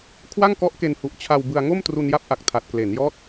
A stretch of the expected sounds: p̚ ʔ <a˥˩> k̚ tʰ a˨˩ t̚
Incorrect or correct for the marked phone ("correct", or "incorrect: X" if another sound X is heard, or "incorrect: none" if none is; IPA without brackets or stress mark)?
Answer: incorrect: a˨˩